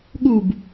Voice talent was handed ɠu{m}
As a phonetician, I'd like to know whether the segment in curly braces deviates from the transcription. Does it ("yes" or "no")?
yes